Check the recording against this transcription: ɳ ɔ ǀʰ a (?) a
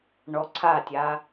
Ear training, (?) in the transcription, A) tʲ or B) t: A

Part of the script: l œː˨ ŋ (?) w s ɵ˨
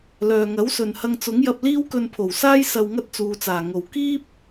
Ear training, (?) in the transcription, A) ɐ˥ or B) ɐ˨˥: B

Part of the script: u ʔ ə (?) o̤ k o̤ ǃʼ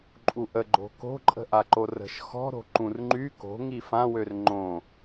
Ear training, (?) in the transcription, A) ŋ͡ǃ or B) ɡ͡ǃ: B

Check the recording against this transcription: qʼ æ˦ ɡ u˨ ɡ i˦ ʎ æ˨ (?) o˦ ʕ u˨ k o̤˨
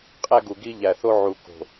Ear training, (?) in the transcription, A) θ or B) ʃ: A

